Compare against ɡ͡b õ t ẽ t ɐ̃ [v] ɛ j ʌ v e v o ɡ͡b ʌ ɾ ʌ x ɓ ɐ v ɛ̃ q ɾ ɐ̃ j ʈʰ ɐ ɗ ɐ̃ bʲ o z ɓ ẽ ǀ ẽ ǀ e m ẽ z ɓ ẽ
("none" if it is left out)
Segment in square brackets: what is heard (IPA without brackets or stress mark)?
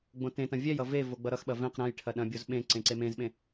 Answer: vʲ